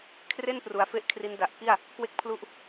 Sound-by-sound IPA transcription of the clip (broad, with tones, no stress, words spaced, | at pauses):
kʰre˥˩n pru˩˦a̯fe˦˥ʔ kʰri˦˥nda˨˩ʔ ki˥˩a̯ | kwe˥˩k̚ pʰlu˥˩ʔ